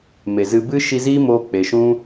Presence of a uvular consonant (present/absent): absent